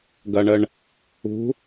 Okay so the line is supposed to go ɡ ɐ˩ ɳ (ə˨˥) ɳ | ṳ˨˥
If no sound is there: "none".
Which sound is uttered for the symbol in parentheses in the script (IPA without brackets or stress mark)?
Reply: ə˩